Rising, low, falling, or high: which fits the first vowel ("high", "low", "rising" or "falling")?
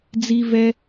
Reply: low